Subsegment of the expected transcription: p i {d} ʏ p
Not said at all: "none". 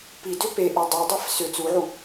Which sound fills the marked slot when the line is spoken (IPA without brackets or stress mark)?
d